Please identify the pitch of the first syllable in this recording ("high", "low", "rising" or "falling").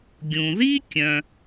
low